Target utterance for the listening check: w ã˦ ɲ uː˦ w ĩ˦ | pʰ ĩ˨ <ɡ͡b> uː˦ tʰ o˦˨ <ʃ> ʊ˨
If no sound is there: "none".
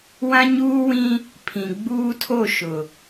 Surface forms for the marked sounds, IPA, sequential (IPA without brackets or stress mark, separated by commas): ɡ͡b, ʃ